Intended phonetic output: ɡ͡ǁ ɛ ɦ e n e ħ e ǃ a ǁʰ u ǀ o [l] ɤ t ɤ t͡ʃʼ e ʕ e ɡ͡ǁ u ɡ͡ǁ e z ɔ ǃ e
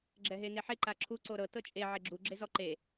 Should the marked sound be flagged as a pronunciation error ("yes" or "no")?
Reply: yes